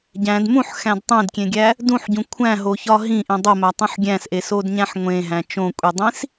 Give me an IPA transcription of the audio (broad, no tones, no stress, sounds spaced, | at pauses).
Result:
ɟ æ̃ d m ũ ħ x æ̃ d tˤ ẽ d kʲ ẽ ɡʲ æ | d ũ ħ ɟ ũ kʷʰ æ̃ ɦ o ç ɒ ɦ ĩ ʔ ĩ dˤ o m æ tˤ ũ ħ ɡʲ æ̃ s ʔ e s o d ɲ æ̃ ħ ŋʷ ẽ ɦ æ̃ t͡ʃ õ kʷʼ i dˤ ĩ s